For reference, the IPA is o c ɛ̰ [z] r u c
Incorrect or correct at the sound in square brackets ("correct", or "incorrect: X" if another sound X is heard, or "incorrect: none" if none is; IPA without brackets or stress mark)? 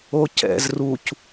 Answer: correct